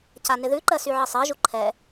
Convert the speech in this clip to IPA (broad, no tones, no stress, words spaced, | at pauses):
canɪðʉǃɜ syʕəsˤɜʒu ǃʰɛ